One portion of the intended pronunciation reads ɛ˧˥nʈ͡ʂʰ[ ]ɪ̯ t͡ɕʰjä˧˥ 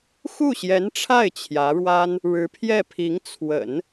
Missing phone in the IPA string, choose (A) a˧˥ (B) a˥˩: B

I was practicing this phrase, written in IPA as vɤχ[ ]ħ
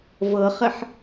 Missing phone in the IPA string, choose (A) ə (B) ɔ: A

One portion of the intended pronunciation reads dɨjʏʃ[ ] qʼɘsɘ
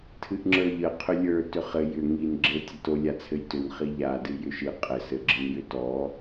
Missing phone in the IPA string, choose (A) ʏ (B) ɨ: B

